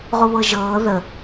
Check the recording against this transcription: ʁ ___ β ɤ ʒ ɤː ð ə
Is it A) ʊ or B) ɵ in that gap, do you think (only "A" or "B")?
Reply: A